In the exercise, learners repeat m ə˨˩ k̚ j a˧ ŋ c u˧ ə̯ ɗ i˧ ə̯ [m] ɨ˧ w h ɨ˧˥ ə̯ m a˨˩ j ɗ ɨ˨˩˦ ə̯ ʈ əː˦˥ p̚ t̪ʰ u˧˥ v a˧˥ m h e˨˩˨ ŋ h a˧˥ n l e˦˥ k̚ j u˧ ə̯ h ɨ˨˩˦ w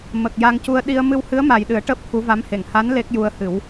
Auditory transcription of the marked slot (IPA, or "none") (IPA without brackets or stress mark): m